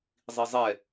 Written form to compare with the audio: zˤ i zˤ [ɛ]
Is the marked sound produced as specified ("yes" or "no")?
yes